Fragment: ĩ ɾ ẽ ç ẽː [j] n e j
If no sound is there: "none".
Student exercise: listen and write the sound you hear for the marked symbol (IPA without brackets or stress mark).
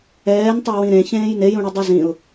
j